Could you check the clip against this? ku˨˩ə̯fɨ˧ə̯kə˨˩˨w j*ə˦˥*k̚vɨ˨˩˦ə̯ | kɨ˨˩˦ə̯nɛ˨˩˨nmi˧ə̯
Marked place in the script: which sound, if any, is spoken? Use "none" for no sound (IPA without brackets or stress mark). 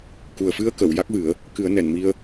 a˦˥